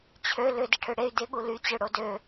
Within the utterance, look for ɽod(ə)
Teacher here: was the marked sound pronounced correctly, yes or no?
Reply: no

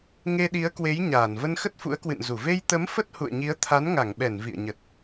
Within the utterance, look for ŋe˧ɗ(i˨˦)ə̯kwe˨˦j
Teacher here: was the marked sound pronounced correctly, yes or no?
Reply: yes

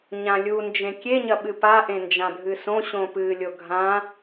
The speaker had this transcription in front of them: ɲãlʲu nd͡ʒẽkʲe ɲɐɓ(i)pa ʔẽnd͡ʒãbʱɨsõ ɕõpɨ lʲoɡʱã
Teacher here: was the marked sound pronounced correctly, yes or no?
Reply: no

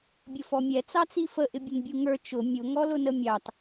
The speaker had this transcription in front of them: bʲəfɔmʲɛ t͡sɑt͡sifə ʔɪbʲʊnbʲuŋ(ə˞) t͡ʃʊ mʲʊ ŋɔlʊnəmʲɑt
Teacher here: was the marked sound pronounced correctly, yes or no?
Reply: yes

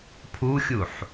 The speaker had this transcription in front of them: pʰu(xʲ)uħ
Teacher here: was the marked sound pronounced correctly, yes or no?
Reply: yes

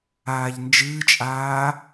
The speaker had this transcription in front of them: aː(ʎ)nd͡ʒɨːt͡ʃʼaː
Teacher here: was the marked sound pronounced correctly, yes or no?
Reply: yes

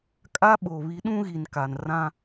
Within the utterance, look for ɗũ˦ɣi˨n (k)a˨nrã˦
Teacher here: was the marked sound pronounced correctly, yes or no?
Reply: yes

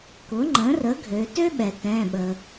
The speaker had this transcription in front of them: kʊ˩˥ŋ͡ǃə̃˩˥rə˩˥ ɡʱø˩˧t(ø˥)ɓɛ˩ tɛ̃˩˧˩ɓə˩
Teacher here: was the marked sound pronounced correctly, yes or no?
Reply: yes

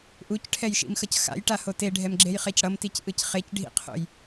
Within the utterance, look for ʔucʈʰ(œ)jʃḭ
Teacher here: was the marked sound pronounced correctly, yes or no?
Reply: no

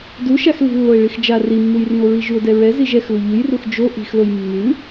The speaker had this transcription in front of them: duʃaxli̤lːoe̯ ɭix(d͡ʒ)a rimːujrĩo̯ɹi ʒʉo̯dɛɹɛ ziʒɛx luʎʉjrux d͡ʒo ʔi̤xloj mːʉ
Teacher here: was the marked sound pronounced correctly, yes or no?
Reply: yes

